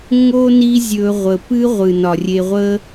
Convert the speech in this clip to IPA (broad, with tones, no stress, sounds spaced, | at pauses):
ŋ o˥ n i˦ zʲ ɵ˨ ʁʷ ə˩ p ɨ˦ ʁʷ ɨ˩ n ɒ˩ rʲ e˨ ʁʷ ə˥